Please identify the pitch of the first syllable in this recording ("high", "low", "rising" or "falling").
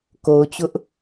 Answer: low